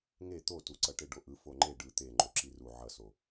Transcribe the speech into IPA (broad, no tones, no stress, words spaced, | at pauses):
ŋe t̪otuǀʌ ʈeɖoʔɯ foŋ͡ǃe ɖɯ t̪eŋ͡ǃo ǁiru ʕʌso